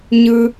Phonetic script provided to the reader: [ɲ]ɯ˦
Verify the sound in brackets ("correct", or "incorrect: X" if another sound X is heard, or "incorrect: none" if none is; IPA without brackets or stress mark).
correct